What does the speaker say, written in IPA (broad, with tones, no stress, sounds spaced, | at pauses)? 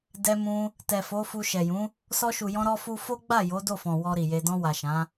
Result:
d ɛ˧ m ũ˧ | t ɛ˨ f o˨˦ f u˧ ʃ ɛ˨ j ũ˨˦ | s ɔ˧ ʃ u˨ j ɔ̃˧ ɾ ɔ˦ f u˦ f o˦ ɡ͡b a˦˨ j o˨˦ d o˦˨ f ɔ̃˨ w ɔ˧ ɾ i˨ j e˧ d ɔ̃˧ w a˨ ʃ ã˨˦